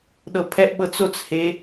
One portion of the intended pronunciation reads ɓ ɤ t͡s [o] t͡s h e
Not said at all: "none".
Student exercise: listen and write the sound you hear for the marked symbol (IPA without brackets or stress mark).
o